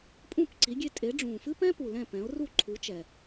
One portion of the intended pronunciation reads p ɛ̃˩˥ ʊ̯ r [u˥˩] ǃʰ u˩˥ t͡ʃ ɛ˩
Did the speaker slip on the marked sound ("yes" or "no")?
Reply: no